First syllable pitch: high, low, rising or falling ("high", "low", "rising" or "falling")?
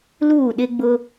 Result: falling